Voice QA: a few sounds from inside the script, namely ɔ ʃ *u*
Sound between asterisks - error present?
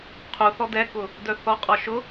yes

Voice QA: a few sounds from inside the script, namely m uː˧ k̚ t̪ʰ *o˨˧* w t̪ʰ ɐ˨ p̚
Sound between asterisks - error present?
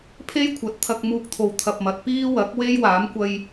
yes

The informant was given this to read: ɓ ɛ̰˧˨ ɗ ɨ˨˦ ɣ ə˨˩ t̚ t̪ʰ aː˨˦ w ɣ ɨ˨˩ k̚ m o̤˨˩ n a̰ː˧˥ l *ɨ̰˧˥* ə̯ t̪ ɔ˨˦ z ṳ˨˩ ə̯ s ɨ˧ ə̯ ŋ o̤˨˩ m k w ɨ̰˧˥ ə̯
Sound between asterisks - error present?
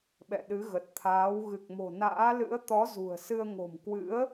no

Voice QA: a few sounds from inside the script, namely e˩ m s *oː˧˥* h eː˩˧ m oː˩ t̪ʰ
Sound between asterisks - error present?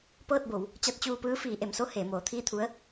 yes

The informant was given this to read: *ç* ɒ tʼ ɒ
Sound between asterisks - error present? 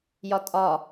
yes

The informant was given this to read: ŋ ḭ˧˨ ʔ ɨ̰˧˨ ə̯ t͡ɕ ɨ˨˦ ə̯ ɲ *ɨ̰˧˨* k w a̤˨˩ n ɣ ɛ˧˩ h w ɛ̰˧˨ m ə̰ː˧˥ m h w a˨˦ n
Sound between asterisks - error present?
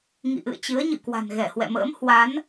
no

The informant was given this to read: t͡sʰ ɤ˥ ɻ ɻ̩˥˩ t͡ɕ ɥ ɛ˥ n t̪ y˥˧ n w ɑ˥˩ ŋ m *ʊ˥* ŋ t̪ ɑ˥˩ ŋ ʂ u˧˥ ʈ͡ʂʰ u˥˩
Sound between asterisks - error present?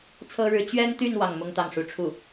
no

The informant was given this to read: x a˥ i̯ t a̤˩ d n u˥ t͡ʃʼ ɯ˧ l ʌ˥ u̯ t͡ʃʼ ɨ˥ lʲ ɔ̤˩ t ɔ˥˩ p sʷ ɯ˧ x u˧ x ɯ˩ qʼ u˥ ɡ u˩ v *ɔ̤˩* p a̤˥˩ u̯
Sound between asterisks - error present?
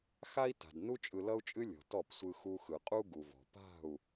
no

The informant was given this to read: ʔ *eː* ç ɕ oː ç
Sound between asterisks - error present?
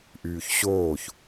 yes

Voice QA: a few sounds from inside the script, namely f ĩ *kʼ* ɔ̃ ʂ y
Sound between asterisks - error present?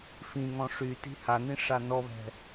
yes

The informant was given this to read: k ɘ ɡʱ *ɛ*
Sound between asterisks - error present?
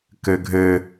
yes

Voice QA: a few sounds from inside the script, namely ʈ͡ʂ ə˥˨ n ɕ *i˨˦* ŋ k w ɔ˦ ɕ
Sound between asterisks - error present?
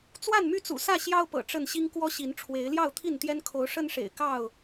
yes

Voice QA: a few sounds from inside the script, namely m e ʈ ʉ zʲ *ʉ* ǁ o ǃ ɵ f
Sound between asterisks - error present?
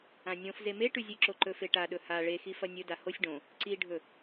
yes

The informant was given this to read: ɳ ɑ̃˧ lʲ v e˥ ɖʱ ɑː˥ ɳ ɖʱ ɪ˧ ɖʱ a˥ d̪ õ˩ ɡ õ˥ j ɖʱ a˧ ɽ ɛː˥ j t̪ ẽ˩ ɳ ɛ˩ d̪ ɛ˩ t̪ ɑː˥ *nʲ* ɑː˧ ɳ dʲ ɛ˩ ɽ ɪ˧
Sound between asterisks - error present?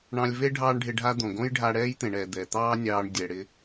no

